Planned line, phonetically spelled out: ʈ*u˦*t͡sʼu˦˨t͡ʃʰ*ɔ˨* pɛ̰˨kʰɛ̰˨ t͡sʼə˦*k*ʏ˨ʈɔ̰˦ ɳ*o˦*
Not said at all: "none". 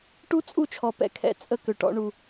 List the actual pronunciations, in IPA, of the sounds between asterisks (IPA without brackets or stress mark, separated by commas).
u˦, ɔ˨, k, u˦